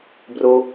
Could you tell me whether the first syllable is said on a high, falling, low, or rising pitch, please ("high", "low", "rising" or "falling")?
high